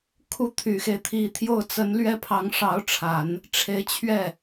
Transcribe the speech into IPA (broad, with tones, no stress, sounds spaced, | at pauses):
kʰ u˥˩ t̪ʰ y˨˩ x e˦ ɪ̯ t̪ʰ i˧˥ t̪ʰ j o˥˩ ʊ̯ t͡s ə˧˥ n l ɥ ɛ˥ pʰ ɑ˧˥ ŋ ʂ ɑ˧˥ ʊ̯ ʈ͡ʂʰ a˨˩˦ n | ʈ͡ʂʰ e˧˥ ɪ̯ t͡ɕʰ ɥ ɛ˥˩